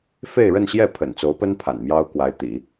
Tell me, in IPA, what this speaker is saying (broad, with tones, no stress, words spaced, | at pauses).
fe˥˧ɪ̯ɻə˥˧nɕjɛ˥˩ pʰə̰˨˩nt͡so˧˥ʊ̯pə˥n pʰa̰˨˩nmjɑ˥ʊ̯kwa˧˥ɪ̯ t̪ḭ˨˩˦